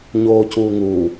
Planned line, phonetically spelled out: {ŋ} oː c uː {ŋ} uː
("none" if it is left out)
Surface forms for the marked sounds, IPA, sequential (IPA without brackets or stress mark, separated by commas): ɲ, ŋ